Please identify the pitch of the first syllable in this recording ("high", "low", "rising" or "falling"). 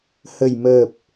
low